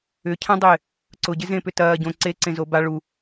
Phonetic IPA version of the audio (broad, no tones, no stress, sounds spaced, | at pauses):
ʏ cʰ ã dˤ ɪː | ǀ ʊ ɟ ɪ z ẽ p ʏ t ɐː ɟ õ ǀ e ǀ ẽ z o b a ɭ u